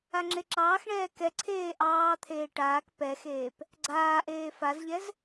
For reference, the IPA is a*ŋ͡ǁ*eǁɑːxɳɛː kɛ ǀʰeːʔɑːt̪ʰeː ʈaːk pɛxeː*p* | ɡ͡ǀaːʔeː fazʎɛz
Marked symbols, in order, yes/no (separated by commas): yes, yes